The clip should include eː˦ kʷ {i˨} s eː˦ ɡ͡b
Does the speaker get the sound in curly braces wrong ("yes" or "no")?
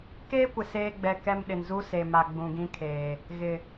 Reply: yes